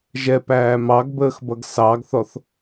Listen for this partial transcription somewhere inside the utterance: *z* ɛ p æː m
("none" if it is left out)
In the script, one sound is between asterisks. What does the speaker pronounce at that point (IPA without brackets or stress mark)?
ʒ